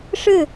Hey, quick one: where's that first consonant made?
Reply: retroflex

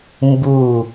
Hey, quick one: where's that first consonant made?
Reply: lips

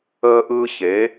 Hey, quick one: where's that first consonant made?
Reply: throat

